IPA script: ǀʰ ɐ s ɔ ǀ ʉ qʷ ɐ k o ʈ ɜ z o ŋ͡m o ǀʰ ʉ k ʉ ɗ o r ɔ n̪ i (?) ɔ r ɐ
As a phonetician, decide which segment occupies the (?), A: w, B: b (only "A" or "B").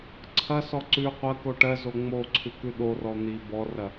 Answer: B